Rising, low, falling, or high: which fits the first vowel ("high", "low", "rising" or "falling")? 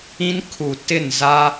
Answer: high